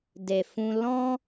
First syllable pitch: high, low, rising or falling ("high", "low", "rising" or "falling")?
low